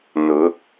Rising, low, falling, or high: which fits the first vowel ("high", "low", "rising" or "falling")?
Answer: rising